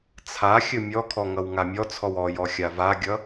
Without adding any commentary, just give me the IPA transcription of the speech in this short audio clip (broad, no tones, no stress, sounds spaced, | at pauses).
t͡sʰ a xʲ ɵ mʲ ɔ kʰ ɔ ŋ ʌ w ŋ a mʲ ɔ t͡sʰ ɔ w ɔ j ɔ xʲ a v a ɡʲ ʌ